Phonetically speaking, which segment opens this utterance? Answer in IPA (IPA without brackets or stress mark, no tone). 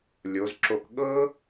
lʲ